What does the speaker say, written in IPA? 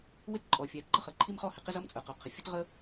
w ɪ˥ t ǃʼ ɔ˩ fʲ æ˩ ɡ͡ǃ ʌ˥ χ ə˩ ǃʰ i˥ m χ ɔ˥ h ɪ˩ q ɪ˥ z ʌ˥ m t͡sʼ ə˞˩ q ʊ˩ qʰ ə˩ fʲ ʊ˥ t ʁ ə˥

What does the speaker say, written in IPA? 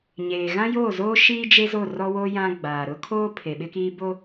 ɲ eː˨ ɣ ã˦ j oː˦˨ z oː˦ ʃ iː˦ d͡ʒ e˦ z o˦˨ r ɔ˦ w o˦ j ã˦ ɡ͡b aː˨ ɾ ʊ˦ kʰ oː˦ pʰ e˨ ɓ ɪ˦ k iː˦ b o˦

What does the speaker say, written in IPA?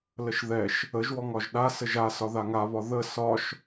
l ə ʃ ð ɛ ʃ | ə ʒ w ɔ ŋ ɒ ʒ ɗ a s ə ʒ a s ɒ ð a ŋ a β ɒ ð ə s ɒ ʃ

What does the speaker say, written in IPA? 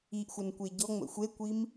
i ʔ xʷ ə n kʷ e ɟ ɔ ŋ͡m ə̰ xʷ e kʷ i m

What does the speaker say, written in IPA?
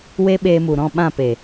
w e˧ ɓ eː˧ m u˨ ɾ ɔ̃˦˨ ɓ ã˦˨ p e˨

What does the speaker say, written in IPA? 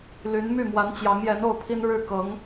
l y˧˥ n m y˥˩ m w a˧˥ n t͡ɕ j ɑ˧˥ ŋ j ɛ˧˥ n o˥˩ ʊ̯ pʰ i˥ n ɻ ɻ̩˥˩ k ɤ˧˥ ŋ

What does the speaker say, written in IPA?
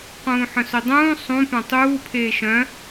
q ũː ħ œ̃ s ɵ dˤ ũː sˤ ũ p œ̃ tˤ uː pʰ eː ʃ œ̃

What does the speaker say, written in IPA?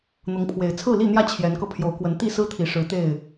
n̪ ʊ˨˦ ŋ pʰ w e˨˩ ɪ̯ t͡sʰ ɹ̩˥˨ l i˥˨ n̪ j ä˥˨ t͡ɕʰ j ɛ˨˦ n k ɤ˧ pʰ j o˨˦ ʊ̯ k w ə˨˦ n t̪ i˥˨ s ɹ̩˦ t̪ʰ i˨˩ ʂ ɻ̩˨˦ t̪ e˥˨ ɪ̯

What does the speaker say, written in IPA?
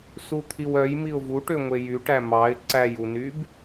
s u t̪ʰ i w œ j m i ʊ̯ v u ʈ ø ŋʷ e j y ʈ æ m ɑ ɪ̯ ǀ æ j u n y b

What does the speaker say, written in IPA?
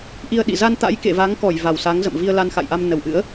ʔ i˧ ə̯ ɗ ḭ˧˨ z a˧ n t̪ a̰˧˥ j k ḛ˧˨ v a˨˦ ŋ k ɔ˧˩ j v a˨˩ w s a˨˦ ŋ z ə̰˧˨ m v i˧ ə̯ l a˧ n x a̰˧˨ j ʔ a˧ m n ə˧˩ w ʔ ɨ̰˧˥ ə̯

